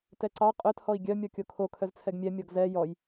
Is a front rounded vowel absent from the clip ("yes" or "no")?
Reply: no